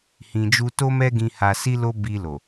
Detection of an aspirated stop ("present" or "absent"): absent